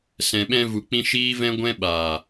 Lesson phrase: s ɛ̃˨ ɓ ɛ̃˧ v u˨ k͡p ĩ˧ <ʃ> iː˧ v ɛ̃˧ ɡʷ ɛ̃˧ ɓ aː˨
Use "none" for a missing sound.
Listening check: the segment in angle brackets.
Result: ʃ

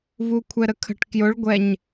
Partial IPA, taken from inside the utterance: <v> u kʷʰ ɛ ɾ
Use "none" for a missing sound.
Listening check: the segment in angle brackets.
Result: v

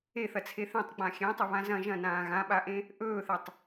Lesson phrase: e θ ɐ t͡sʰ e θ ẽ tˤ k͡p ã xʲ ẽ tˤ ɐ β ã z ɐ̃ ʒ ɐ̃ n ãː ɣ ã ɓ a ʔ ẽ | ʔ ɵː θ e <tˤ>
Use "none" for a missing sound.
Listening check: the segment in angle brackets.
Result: tˤ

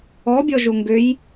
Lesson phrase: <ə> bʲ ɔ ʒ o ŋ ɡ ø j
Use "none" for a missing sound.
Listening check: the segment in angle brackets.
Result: ɔ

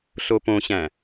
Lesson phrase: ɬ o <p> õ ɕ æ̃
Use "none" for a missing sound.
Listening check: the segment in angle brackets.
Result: p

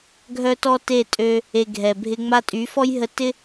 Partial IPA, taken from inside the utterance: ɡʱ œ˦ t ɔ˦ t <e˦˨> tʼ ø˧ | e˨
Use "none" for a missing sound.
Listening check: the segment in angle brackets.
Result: e˦˨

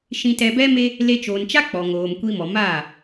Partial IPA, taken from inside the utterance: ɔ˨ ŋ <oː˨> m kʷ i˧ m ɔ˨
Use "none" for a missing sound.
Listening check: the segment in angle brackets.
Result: oː˨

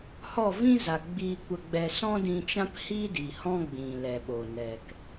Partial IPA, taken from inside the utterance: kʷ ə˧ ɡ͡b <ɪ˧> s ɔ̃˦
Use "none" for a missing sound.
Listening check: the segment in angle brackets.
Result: ɛ˧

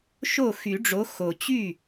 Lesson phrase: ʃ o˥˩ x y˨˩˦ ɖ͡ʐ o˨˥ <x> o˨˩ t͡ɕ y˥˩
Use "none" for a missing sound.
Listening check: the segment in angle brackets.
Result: x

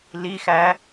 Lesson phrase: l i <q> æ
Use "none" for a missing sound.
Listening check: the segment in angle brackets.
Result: x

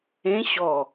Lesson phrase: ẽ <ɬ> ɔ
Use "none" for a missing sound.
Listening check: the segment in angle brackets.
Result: ɕ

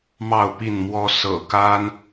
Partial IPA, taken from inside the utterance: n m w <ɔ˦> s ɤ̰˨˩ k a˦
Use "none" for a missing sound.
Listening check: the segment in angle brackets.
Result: ɔ˦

